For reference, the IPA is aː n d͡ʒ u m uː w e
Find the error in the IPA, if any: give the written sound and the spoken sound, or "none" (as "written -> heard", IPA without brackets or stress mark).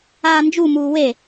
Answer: none